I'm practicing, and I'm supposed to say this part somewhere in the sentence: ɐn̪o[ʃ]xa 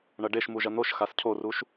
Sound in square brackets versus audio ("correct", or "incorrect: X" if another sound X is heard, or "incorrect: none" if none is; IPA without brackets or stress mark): correct